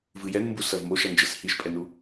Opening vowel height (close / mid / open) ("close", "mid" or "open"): close